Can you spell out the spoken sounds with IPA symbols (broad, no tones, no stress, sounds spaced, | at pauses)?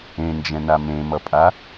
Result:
ẽ n d͡ʒ ɛ̃ n a m ẽ m ʌ pʼ a